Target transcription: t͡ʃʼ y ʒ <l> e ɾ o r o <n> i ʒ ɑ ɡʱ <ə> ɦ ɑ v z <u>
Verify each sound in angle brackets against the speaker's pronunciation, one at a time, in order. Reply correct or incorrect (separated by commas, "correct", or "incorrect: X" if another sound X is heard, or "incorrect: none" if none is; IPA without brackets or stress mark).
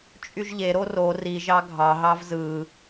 incorrect: ʎ, incorrect: r, incorrect: ɑ, incorrect: ɯ